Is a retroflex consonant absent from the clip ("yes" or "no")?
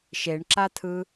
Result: no